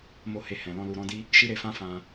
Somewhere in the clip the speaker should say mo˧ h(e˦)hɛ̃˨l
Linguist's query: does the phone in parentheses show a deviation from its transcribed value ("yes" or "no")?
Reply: yes